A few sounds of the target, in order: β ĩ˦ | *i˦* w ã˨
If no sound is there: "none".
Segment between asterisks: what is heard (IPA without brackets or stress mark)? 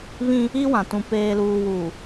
i˦